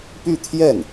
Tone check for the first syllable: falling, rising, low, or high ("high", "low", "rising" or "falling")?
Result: falling